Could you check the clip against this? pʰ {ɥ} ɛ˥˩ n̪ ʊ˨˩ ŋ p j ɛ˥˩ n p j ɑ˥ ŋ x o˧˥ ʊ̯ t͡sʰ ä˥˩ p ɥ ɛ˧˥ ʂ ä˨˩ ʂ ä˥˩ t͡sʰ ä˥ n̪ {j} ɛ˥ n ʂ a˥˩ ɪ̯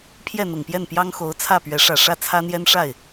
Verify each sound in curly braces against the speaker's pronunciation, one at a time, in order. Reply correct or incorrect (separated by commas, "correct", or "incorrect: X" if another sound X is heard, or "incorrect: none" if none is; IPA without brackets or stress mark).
incorrect: j, correct